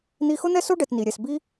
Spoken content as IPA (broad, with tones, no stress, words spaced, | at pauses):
n̪i˧xʊ˦n̪ɛ˦so˦ ɖɛ˦tni˧ɾʲɛ˧s bi˦